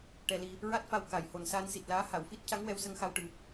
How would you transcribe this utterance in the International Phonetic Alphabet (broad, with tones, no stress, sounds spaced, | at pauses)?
ʈ ɛ˧ l i˧ | ɹ a˦˥ t̚ f a˧ w k a˨˩ j h o˨˩ n s aː˧ n s i˨˩ t̚ l aː˧˥ h a˨˩˨ w f i˦˥ t̚ c a˧˥ ŋ w ɛ˧ w s ə˧ ŋ x a˧ w ʈ ɨ˨˩˦